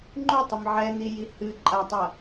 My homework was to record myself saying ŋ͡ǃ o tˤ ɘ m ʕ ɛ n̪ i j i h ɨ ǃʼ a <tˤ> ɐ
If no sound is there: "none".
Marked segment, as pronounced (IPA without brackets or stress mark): tˤ